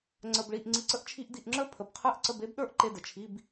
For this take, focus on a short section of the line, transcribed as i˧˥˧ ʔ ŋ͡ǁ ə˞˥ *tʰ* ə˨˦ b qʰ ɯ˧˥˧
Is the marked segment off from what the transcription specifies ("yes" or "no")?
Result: yes